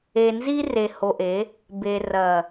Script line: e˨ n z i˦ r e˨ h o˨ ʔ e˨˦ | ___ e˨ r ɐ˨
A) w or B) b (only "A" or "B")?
B